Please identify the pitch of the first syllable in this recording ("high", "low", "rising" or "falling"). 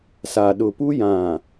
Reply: low